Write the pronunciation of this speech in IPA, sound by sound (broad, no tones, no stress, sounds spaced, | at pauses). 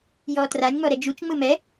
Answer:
j ɔː t r a nʲ ŋ͡m ɔ ɾ ɛ d͡ʒ u t͡ʃ ŋ͡m ɯ m ɛ